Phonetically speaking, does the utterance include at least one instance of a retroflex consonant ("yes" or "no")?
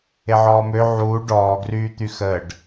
yes